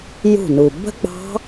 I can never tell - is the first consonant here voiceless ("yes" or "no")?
no